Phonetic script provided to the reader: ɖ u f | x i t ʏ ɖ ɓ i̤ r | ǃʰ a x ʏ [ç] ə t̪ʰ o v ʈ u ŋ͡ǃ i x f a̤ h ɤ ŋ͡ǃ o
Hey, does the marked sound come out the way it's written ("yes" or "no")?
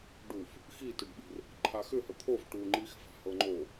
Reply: no